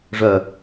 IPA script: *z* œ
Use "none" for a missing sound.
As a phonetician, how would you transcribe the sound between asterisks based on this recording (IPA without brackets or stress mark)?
ʐ